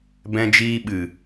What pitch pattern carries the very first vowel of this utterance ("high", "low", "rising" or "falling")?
low